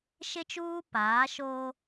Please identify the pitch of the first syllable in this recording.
high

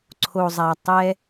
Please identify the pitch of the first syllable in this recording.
low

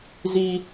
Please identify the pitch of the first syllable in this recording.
high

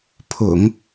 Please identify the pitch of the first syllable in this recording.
low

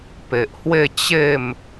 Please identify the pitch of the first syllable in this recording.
low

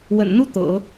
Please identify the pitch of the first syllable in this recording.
low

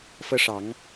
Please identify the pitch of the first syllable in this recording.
high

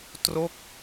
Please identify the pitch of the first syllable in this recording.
falling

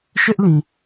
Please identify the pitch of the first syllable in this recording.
high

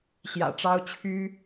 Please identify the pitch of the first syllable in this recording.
low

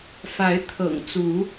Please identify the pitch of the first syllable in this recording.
rising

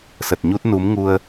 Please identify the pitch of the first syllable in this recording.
low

